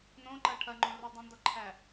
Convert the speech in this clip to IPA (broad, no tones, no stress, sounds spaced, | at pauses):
n õ ǃ ɐ ʈʰ ɐ ŋ͡ǃ õ r u dˤ õ n d ɔ ǃʰ æ